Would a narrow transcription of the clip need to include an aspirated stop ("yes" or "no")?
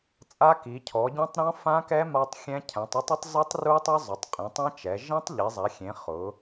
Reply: yes